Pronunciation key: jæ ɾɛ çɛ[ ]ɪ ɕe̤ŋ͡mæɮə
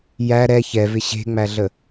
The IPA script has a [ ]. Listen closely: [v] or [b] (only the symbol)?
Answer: v